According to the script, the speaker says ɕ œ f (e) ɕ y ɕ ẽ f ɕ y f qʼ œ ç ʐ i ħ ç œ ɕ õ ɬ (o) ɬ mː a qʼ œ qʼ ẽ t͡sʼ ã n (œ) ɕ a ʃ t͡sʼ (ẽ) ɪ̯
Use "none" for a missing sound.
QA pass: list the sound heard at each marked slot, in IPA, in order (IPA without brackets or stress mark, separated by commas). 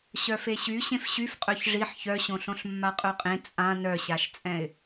e, õ, œ, ɛ̃